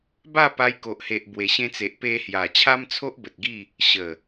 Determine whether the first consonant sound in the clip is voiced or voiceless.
voiced